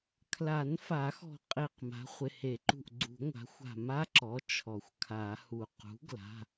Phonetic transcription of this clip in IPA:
kʰ l a˨˩˦ n f a˨˩˦ x ɔ̤˧˩ qʼ e˧˩ q m a̤˩˥ χʷ ɪ˩˧˩ h e˨˩˦ ǃ ṳ˧˩ ʔ ɡ͡ǀ ṳ˨˩˦ ŋʷ a̤˩˥ xʷ a̤˧˩ m a˦˥ ǁ ɔ˩˥ t͡ʃʰ ɔ˩ xʷ kʰ a˨˩˦ h u˩ q ṳ˩˥ ɡ l a̤˩˧˩

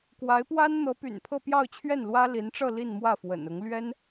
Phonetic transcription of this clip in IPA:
k w a˧˥ ɪ̯ p w a˥ n n̪ ɤ˧˥ p y̰˨˩ n pʰ ɤ˥˧ p j ɑ˥˧ ʊ̯ t͡ɕʰ ɥ ɛ˥˩ n l w ä˥ l i˧˥ n ʈ͡ʂ ɤ˥˧ l i˥˧ n m w ä˥˩ f w ə̰˨˩ n ʊ˧˥ ŋ l ɥ ɛ˥ n

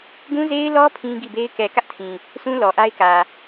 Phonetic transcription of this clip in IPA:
ɡ ũ˦ z e˦ ɪ̯ l ɔ˦ pʰ ĩ˦ ɡ i˦˨ b e˦ ɪ̯ k ɛ˨ k ä˦ ʔ tʰ ĩ˨ | sʰ ũ˦ l ɔ˨ ʔ a˦ ɪ̯ k ä˨

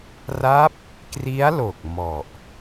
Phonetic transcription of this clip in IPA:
r a˦˥ p̚ | k r i˦˥ a̯ l o˨˩ k̚ m ɔ˨˩ ʔ

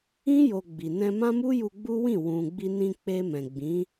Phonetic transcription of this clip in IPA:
ĩ˦ j o˧ ɡ͡b i˨ n ɛ̃˧ m ã˦ m u˦ j u˧ ɡ͡b u˦ w ĩ˦˨ w ũ˨ ɡ͡b i˧ n ĩ˧ k͡p e˧ m ɛ̃˨ ɡ͡b ĩ˨˦

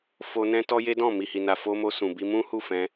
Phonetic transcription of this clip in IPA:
f o˧ n ɛ̃˧ t ɔ˧ j e˦ d ɔ̃˦˨ m i˨ h i˨ n a˨ f o˧ m o˧ s ũ˨ b i˧ m ũ˦ h u˦˨ f ɛ̃˧

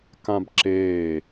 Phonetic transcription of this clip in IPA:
k ã b ǁ eː

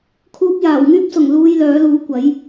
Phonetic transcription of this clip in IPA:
kʰ uː˧ p̚ j aː˨˩ w ŋ yː˥ p̚ s ʊ˨˩ ŋ l uː˧ j l œː˨˥ l uː˨˥ kʷ ɐ˨˥ j

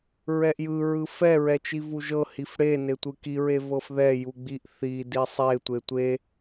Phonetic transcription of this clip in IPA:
ɹ ɛ ʔ j ɯ ɹ ɯ f ɛ ɹ ɛ t͡ʃ i v u ʒ ɤ h i f ɽ e n e tʷ ɯ k i ɹ e v ɤ f ð ɛ j u ɡ͡b i ʔ θ i d i sˤ e tʷ e tʷ e

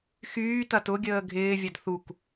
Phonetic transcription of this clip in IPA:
x yː t ɐ t ʊ ɡʲ əː ɡʱ ɪː vʲ ɐ d θ u k

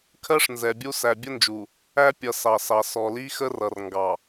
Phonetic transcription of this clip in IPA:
kʰ ɜ˦ ʂ n z ɛ˨ bʲ u˦ s æ˨ bʲ ə˦ n d͡ʒ u˨ | æ˦ pʲ ʌ˨ s ɑ˨ s ɑ˨ s ɔ˨ l i˦ x ə˦ r ʌ˨ r ŋ ɡ ɑ˨

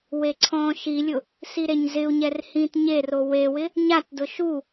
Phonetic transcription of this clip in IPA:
w e ǀʰ ɔ̃ː ʃ i lʲ ʊ | s i ɾ e ɲ z ɪ u̯ ɲ ɛ r h ĩː t ɲ e r o w e w ɪ | ɲ a t d ʊ ʃ u

